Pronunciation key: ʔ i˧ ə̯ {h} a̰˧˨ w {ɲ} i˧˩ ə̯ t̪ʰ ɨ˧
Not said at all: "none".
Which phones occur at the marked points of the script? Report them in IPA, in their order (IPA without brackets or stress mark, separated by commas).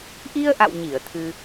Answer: ʔ, ɲ